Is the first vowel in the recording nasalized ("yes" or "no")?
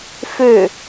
no